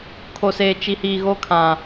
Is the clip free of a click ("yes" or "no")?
yes